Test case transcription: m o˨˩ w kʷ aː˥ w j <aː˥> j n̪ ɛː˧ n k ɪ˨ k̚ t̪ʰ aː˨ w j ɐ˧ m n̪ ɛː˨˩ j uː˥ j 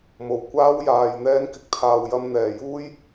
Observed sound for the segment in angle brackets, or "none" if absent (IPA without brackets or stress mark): aː˨